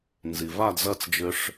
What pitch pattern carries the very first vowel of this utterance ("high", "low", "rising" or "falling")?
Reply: low